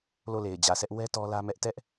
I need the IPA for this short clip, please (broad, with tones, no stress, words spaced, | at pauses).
lo˦˨le˨ɪ̯d͡ʑä˨sɛ˦ʔ wɛ˦ tɔ˦lä˦mɛ˦ʔ tɛ˦ʔ